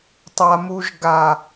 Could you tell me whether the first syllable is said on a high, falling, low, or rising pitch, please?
low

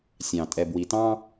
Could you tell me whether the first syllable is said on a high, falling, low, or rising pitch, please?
low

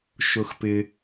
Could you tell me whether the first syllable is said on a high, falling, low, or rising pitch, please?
low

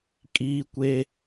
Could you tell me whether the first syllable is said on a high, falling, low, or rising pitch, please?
high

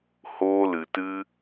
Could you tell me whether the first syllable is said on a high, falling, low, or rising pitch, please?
high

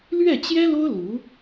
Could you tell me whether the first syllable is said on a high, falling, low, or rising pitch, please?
falling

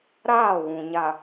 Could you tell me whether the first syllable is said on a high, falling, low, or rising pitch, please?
falling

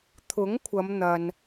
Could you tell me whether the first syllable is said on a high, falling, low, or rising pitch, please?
rising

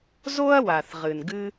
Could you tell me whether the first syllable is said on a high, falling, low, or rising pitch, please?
high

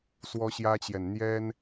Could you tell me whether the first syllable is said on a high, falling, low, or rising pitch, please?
high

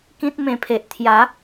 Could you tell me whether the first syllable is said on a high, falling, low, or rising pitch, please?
high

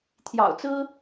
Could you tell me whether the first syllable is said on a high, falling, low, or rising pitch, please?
low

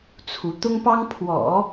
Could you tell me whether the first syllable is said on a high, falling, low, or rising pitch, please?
rising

